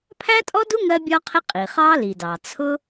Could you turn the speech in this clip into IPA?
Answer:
pʰ æ˥ tʼ ɔ˥ d u˥ ŋ ɜ˥ bʲ ɒ˥ qʰ ɪ˥ qʼ i˩ χ ɑ˥ l i˩ d ɑ˩ t͡sʰ ʊ˥

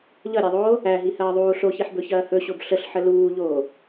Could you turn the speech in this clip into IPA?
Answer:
ʎ ʌ ɾʲ æ ðˤ oː | æ ɦ i h ɐː ðˤ uː ɬ o ç i ħ b ɵ ç ɐː h ɵ ɕ o b ɬ ə ɬ ħ ə l uː ʎ oː

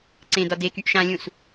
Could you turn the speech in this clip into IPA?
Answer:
ǀ ẽ d ɒ d e k y ʔ ʃ ã lʲ ũ s

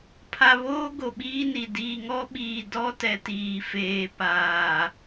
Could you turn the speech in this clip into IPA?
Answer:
pʰ a˨ β oː˦ ɡ o˨ ɓ iː˦ n i˨ d iː˨ ŋ ɔ˦ ɓ iː˨ d ɔ˦ t ɛ˨ t iː˨ f eː˨ p aː˨

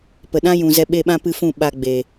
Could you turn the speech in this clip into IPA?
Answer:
p ə˨ ɗ ã˦ j ũ˨ z ɛ˧ ɓ e˧ ɓ ã˦ p ɨ˧ f ũ˦˨ ɓ a˧ ɡ͡b e˨

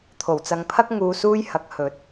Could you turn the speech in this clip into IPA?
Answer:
t̪ʰ o˨˩ w t͡s ɐ˨ ŋ pʰ ɐ˥ k̚ ŋ uː˧ s uː˥ j h ɐ˨˥ k̚ h ɵ˨˥ t̚

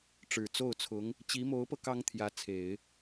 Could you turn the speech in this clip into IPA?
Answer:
ʈ͡ʂ ɻ̩˨˩ t͡s o˥˩ ʊ̯ t͡sʰ ʊ˧˥ ŋ | t͡ɕ i˧˥ m o˧˥ ʊ̯ p ɤ˧ k ɑ˥ ŋ t̪ʰ j ä˧˥ t͡sʰ e˨˩˦ ɪ̯

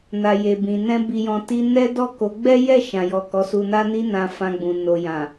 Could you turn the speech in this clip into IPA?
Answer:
n a˨ j e˨ b ĩ˨ n ɛ̃˧ b i˨ j ɔ̃˨ t i˧ n ɛ˦ d ɔ˦˨ k o˨˦ ɡ͡b ɛ˦ j ɛ˦˨ ʃ ã˨ j ɔ˨ k ɔ˨˦ s u˧ n a˦ n i˦ n ã˧ f ã˧ ɡ͡b ũ˨ n o˨ j ã˨

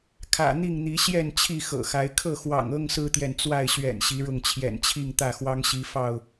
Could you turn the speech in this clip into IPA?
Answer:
kʰ ä̰˨˩ n̪ i˥˨ ŋ n̪ i˨˦ ɕ j ɛ˥˨ n t͡ɕʰ i˥˨ x ɤ̰˨˩ x a˨˦ ɪ̯ kʰ ɤ˥˨ x w ɑ̰˨˩ ŋ ɤ˦ ŋ s ɹ̩˦ t̪ j ɛ˨ n t͡s w a˥˨ ɪ̯ ɕ ɥ ɛ̰˨˩ n ɕ i˨˦ ɻ ʊ˥˨ ŋ t͡ɕʰ j ɛ̰˨˩ n t͡ɕʰ i˥˨ ŋ t̪ ä˥˨ x w ɑ˦ ŋ ɕ i˨˦ f ɑ˥˨ ʊ̯

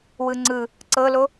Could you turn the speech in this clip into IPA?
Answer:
w ɯ ŋ͡ǀ ɯ | ǀ ɤ l o

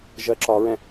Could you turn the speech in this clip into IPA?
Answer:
ʒ ɜ ǁ ɒ ɹ ɛ̃

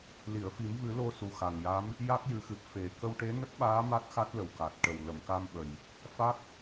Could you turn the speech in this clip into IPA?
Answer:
l i˨˩˨ ə̯ f i˨˩˦ m v ɨ˨˩˦ l o˧ s u˨˩ x a˨˩ ŋ j a˧˥ m | j a˦˥ k̚ j ɨ˨˩˦ x ɨ˨˩ p̚ f e˨˩ k ə˧ w ʈ e˧˥ n ə˦˥ k̚ ɓ aː˧˥ m a˦˥ t̚ x a˦˥ t̚ l ə˨˩ w k a˨˩ t̚ ʈ ə˨˩ w l ə˨˩˨ m k a˧ m ɓ ə˨˩ j | f a˦˥ k̚

